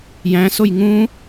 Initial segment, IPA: j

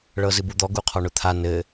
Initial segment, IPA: ɭ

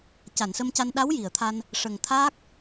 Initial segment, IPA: c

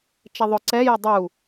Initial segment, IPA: t͡ʃ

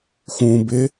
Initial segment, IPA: x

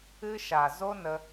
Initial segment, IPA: ɨ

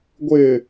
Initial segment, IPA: ɡʷ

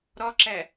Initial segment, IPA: ɾ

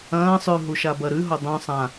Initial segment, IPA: ɐ̃ː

